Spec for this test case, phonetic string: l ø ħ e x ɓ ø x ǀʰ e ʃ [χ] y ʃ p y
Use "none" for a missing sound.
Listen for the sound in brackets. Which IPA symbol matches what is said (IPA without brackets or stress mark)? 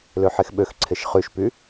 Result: χ